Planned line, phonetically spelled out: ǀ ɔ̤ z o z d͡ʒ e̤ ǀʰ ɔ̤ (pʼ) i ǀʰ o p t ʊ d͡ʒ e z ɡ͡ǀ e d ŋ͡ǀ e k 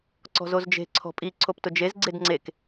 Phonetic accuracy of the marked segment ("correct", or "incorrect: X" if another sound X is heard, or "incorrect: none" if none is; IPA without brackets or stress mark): correct